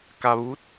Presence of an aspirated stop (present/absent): absent